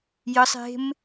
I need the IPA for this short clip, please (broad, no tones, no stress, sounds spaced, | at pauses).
j ə sˤ e̤ m